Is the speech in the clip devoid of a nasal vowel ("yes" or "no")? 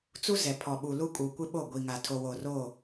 yes